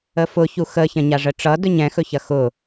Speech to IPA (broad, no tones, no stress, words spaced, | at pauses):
əfʊçu xəçɐ̃ɲa ʐəʈ͡ʂʌdɵɲ ɛ̃xɵçɐ xʊ